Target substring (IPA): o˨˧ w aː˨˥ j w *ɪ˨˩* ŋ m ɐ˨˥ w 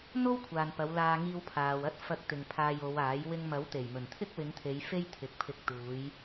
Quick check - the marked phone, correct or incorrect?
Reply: incorrect